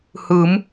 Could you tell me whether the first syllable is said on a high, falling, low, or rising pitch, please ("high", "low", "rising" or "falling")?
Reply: rising